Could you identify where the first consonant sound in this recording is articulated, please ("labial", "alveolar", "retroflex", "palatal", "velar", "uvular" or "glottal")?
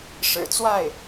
retroflex